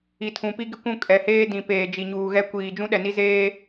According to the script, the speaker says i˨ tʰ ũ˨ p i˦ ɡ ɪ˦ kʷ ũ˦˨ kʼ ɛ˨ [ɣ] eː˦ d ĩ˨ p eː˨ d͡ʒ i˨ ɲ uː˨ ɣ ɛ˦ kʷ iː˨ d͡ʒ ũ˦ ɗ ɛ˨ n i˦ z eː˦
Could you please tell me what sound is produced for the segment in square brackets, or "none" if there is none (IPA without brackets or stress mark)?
h